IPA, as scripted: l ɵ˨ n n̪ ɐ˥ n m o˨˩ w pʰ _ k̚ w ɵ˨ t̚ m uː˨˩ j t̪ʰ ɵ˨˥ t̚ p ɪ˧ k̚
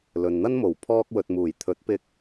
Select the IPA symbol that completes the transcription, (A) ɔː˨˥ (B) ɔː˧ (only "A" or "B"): B